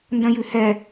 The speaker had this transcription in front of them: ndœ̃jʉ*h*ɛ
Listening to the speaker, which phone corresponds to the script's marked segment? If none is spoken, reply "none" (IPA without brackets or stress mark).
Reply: h